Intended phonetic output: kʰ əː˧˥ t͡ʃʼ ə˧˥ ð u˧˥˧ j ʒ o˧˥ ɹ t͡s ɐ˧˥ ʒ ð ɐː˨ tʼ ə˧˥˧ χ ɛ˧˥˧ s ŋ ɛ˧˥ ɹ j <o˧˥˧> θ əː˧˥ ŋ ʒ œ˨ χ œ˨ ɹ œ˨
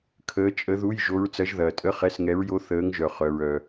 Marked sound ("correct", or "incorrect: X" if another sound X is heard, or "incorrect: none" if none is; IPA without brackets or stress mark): correct